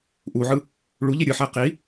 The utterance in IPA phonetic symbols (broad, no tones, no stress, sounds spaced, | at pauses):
ʔ u ʕ ɯ | ɭ u ʎ i ɾʲ ɯ ħ æ q i